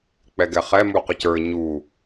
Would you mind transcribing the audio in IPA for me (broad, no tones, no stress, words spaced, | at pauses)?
k͡pɛɡɛχɛ muqəcə˞ ɲu